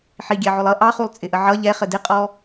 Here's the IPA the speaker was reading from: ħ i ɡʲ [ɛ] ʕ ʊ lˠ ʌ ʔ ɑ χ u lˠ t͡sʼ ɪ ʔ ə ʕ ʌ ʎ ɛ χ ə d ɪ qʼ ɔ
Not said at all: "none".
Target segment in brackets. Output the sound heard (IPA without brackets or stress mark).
ɛ